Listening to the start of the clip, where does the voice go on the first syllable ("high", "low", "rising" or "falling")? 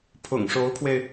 low